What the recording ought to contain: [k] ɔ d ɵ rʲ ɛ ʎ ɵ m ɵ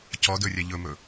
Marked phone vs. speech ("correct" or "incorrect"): incorrect